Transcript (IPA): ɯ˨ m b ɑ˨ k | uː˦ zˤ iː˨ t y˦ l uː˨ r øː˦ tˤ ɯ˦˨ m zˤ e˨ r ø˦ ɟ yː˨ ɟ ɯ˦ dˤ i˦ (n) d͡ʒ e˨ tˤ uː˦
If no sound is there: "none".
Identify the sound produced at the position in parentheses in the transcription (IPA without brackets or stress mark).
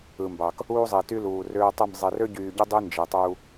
n